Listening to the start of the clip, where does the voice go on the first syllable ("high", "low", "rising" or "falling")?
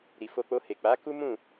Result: low